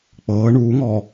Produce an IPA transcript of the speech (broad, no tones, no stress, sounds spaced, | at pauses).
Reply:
k͡p ɤː ɳ uː ŋ ɔː